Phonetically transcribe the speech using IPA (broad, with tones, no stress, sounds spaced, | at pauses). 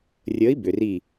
rʲ əː˨˥ i̯ b ʏ˩ r i˧˩